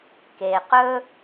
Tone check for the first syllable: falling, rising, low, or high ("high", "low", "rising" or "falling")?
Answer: low